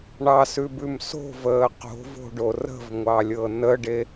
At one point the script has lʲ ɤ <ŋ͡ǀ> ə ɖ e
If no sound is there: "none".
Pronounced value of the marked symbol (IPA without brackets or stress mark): n